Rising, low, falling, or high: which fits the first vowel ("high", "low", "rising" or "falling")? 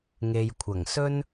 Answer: low